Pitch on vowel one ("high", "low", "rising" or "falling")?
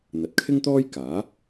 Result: low